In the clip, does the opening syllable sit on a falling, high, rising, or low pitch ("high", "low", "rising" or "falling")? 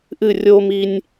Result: falling